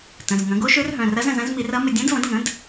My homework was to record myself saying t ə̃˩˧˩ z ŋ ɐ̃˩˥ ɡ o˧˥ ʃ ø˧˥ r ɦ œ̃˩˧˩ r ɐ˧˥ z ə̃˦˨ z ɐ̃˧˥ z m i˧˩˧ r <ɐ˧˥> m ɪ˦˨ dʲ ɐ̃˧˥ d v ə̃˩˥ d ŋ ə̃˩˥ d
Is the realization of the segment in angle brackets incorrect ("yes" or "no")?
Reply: no